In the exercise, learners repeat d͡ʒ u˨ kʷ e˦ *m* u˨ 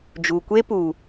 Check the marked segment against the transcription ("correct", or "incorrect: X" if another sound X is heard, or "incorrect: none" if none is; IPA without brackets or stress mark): incorrect: p